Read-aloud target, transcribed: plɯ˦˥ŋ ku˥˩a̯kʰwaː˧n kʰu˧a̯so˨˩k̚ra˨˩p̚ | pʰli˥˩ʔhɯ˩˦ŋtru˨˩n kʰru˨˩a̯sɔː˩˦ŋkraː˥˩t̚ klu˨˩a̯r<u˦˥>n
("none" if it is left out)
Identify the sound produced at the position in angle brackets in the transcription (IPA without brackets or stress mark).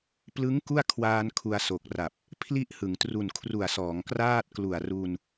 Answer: u˧